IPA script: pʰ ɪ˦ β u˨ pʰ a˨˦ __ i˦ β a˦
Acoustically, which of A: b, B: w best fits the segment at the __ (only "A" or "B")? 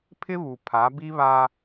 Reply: A